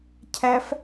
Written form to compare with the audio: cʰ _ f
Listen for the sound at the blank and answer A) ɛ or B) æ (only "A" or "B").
B